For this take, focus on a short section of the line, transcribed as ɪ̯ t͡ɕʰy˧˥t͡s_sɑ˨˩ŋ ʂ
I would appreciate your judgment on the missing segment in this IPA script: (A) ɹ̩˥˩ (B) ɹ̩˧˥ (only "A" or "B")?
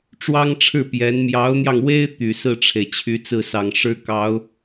A